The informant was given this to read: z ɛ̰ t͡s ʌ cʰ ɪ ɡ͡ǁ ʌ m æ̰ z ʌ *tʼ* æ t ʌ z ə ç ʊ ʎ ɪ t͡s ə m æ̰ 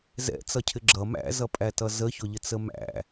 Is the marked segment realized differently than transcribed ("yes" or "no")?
yes